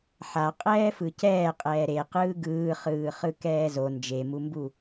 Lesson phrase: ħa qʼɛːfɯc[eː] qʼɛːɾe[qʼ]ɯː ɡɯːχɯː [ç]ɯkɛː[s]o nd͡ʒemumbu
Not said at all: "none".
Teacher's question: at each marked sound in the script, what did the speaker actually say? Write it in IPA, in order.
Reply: ɛː, q, χ, z

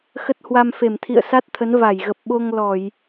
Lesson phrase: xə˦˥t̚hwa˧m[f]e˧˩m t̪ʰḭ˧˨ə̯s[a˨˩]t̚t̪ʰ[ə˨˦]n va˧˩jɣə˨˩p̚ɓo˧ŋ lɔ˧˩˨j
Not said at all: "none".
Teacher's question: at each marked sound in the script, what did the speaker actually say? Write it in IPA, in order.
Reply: f, a˦˥, ə˨˦

